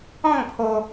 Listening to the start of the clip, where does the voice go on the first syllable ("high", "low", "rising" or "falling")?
falling